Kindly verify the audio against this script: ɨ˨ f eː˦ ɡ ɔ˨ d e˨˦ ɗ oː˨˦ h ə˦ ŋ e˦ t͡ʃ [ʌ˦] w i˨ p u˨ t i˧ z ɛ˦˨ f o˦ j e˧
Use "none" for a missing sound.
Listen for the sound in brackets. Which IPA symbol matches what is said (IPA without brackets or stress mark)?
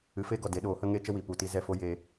ə˦